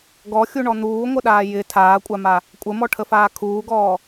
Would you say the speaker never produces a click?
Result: yes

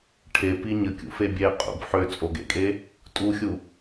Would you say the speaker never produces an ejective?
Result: no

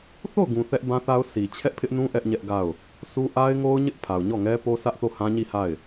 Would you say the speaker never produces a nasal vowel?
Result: no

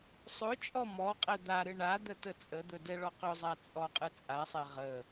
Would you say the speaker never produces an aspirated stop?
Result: yes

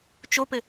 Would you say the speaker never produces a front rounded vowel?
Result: yes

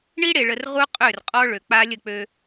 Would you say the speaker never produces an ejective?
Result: no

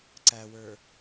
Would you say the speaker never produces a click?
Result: no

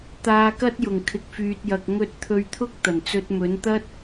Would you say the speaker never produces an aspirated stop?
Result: no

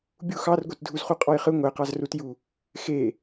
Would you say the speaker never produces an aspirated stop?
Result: yes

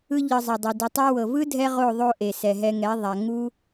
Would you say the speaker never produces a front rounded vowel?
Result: yes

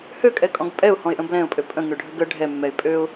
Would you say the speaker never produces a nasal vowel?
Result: no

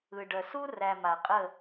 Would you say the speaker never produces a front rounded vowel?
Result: no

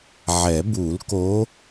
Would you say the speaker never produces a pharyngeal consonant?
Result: no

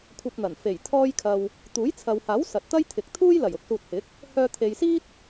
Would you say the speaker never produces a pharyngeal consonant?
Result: yes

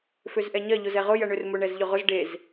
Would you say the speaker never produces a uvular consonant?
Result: no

